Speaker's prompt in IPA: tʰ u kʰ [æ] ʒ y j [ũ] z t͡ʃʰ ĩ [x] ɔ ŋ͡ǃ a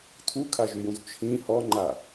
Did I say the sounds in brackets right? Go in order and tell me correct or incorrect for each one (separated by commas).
incorrect, correct, incorrect